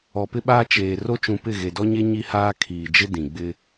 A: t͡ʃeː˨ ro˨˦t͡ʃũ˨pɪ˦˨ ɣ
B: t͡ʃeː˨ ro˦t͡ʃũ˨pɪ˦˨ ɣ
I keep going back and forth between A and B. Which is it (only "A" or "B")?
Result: B